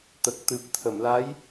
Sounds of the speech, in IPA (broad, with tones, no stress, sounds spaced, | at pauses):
t̪ ə˨˩ k̚ t̪ ɨ˨˩ p̚ t̪ʰ ə˨˩˨ m l a˧˥ j